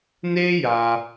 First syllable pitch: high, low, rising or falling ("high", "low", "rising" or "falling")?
high